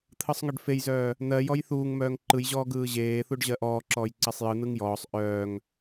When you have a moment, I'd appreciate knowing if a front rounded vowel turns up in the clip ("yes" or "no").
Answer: yes